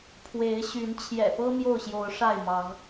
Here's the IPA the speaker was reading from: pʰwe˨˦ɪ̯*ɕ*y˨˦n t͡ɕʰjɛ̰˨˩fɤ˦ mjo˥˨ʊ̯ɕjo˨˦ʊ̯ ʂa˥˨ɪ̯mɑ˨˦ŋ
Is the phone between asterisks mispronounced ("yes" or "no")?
no